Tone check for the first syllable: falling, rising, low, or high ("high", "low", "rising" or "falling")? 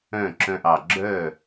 falling